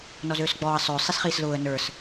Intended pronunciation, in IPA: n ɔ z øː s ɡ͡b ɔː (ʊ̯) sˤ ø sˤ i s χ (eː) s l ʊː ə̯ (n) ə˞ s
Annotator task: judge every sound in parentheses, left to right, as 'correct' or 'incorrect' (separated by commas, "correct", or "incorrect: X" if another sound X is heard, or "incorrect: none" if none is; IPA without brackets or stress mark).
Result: incorrect: ə̯, incorrect: iː, correct